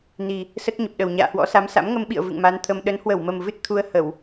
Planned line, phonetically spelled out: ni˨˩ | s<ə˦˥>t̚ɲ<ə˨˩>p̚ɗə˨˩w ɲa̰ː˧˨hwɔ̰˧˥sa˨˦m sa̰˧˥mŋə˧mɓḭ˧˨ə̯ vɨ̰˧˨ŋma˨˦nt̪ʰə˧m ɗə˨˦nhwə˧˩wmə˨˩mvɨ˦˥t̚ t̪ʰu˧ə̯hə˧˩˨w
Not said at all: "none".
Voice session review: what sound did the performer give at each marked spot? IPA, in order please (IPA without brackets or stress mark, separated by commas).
ə˦˥, ə˨˩